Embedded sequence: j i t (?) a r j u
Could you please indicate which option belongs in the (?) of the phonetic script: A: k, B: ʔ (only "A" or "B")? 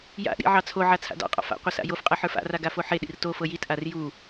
B